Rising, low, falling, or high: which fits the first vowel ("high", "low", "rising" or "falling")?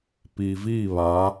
low